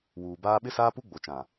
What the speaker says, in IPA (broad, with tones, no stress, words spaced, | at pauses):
wuː˨baː˦ ɓɪ˦saː˦pu˦ ɡ͡bo˨t͡ʃã˨